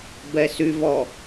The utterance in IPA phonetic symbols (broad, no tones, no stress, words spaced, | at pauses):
bɛsyvɔ